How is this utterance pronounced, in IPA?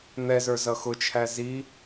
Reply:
n̪ ɛ z ə˞ z ʌ x ʊ t͡ʃʰ æ z i

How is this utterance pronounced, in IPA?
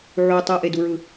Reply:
ʕ u tˤ ɯ ʔ e d u ɹ ɯ

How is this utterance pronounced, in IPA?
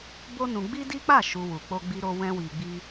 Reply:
b o˦ n ũ˧ ɡ͡b i˦ d i˦ k͡p a˦˨ ʃ u˧ w u˨ k͡p o˧ ɡ͡b i˧ ɾ o˧ w ɛ̃˦ w i˧ ɡ͡b i˦

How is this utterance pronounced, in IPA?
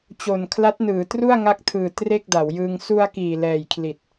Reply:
t͡ɕ o˨˩ n kʰ l a˦˥ t̚ n ɯː˩˦ t r u˥˩ a̯ ŋ a˦˥ k̚ tʰ ɯː˨˩ t r e˥˩ k̚ d a˩˦ w j ɯː˧ ŋ s u˧ a̯ k iː˨˩ l ɛː˨˩ j kʰ l i˨˩ t̚

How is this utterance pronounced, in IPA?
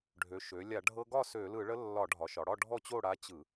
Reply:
ɖʱ ø˩˧ ʃ ø˩˧ lʲ a˧˩˧ ɖʱ ɤ˧ ɡ ɒ˥˨ s ø˧˩˧ l ɯ˧˩˧ ɭ ə˧˥ lː ɒ˧˩˧ ɖʱ ɒ˩˧ ʃ ɒ˩˧ ɽ ɒ˥˨ ɖʱ ɔ˥˨ t͡ɕ o˥˨ ɽ a˧˥ t͡ɕ ɯ˧˩˧

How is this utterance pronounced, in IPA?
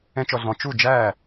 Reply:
ɛ̃˥ t͡ʃ ɔ˧ ɮ ɔ̃˩˥ t͡ʃ u˥˩ d͡ʒ æː˥˩

